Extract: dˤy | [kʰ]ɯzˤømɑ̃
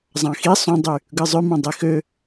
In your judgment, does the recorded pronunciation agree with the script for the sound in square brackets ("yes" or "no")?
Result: no